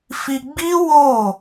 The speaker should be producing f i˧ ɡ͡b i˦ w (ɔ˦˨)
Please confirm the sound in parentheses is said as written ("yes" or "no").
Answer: no